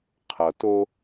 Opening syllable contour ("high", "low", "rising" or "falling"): low